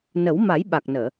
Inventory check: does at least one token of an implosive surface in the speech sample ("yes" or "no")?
yes